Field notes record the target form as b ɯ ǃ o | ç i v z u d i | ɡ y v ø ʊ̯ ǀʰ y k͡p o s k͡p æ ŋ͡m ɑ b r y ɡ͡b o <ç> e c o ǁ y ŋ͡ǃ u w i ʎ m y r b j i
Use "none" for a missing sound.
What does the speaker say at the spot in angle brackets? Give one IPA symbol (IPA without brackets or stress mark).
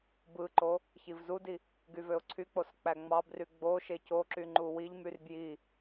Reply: ʃ